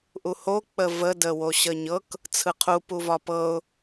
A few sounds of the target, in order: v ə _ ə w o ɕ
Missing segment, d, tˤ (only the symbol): d